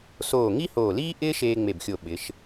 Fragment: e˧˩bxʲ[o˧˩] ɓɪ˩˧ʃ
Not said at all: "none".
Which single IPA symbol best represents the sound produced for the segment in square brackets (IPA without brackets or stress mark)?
o˧˩